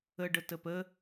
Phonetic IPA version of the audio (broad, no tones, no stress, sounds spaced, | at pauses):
ə ɖ ə t ə p ə